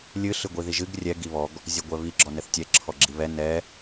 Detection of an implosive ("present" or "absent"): absent